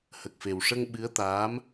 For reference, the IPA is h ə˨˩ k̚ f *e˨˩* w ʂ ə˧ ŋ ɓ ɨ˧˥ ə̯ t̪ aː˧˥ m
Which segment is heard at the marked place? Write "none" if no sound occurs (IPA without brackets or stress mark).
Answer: e˨˩